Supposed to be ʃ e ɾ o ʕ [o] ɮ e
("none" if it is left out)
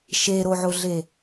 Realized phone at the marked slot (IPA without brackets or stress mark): o